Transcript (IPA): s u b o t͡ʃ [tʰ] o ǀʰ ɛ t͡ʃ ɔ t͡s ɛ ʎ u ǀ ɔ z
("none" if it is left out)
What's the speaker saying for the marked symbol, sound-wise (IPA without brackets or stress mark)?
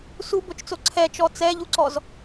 t͡s